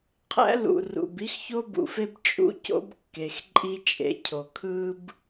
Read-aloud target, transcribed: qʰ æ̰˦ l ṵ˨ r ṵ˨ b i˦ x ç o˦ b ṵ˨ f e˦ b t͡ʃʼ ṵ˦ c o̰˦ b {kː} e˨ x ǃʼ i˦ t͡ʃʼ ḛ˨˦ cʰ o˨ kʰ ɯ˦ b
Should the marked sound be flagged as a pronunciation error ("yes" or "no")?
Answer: no